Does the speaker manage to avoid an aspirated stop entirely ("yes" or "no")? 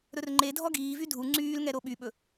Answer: yes